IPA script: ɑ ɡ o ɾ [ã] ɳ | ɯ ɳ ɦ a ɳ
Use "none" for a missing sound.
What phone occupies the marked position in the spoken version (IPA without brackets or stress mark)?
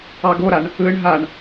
a